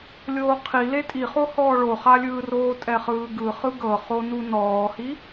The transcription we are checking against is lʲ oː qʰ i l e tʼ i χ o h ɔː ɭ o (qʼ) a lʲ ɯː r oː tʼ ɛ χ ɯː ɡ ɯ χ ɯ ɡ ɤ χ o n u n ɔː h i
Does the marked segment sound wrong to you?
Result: yes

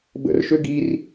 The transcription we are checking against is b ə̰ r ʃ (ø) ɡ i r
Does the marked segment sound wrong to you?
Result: no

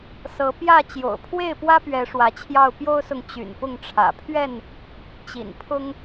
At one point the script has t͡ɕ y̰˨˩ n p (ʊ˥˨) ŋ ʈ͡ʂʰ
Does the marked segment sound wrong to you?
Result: no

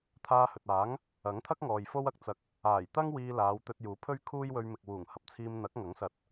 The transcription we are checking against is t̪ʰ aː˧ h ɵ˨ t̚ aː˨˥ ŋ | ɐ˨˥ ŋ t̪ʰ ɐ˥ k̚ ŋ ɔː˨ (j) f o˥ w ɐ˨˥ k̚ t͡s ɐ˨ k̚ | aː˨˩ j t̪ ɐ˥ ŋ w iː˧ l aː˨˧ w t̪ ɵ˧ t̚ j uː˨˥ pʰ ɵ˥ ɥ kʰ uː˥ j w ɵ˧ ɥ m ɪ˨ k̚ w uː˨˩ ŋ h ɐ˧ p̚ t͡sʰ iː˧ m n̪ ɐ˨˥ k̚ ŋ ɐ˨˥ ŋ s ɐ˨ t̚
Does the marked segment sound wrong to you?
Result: no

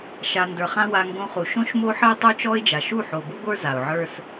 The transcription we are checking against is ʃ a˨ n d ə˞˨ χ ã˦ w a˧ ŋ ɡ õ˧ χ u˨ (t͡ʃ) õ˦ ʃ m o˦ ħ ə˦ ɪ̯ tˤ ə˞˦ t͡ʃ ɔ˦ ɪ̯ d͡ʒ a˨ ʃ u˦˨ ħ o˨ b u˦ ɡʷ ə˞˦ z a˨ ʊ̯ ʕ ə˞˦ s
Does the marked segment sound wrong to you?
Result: yes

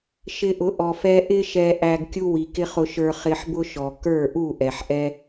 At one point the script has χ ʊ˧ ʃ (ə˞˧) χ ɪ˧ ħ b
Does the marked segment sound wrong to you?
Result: no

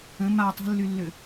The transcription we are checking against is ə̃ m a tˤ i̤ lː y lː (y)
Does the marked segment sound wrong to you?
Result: yes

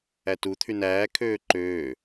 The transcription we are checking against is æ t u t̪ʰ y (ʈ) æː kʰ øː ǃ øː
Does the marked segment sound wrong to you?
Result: yes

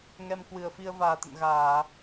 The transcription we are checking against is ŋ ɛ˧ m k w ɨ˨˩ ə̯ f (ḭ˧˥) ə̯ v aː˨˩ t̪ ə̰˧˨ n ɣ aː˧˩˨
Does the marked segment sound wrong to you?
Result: yes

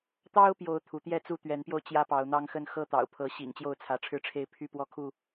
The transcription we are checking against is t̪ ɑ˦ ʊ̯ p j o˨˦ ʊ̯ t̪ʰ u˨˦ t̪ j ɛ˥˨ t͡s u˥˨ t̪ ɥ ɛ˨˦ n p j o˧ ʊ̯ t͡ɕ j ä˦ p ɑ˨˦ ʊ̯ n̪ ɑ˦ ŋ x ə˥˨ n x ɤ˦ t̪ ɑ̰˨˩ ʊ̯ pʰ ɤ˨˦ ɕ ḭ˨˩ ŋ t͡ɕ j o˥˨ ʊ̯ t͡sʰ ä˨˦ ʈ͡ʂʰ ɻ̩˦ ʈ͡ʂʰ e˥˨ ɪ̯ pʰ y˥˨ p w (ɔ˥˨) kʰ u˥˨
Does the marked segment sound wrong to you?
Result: no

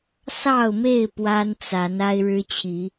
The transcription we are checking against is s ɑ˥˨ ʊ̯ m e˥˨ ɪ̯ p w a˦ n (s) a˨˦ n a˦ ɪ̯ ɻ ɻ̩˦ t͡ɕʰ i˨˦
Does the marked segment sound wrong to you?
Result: yes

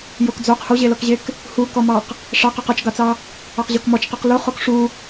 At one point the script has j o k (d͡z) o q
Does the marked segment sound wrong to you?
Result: no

